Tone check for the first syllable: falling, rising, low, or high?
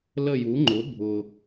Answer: falling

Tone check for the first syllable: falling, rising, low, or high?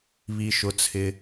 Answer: low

